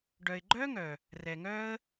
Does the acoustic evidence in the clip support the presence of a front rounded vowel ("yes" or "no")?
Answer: yes